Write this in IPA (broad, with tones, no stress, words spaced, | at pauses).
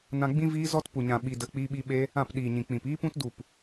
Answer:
nã˧ɡ͡bĩ˦ viː˦zɔ˦t pu˨ɲã˨ ɓi˧də˧k͡pi˦ɓi˦ ɓe˦ | ã˦˨pɗiː˨ɲĩ˨ k͡pĩ˨p iː˦pũ˦t du˦˨p